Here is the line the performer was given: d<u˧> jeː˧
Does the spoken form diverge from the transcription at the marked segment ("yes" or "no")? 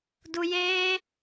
no